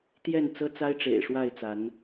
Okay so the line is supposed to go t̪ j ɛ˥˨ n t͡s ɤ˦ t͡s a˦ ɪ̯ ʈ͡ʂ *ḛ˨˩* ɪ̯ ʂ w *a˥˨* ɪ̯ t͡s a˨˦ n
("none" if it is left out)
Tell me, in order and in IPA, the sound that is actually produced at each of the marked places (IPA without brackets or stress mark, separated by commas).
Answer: ḛ˨˩, a˥˨